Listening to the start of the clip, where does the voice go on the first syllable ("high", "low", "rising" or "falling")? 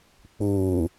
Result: low